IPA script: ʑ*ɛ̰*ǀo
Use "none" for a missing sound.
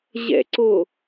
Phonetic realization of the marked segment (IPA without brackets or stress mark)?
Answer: ɛ̰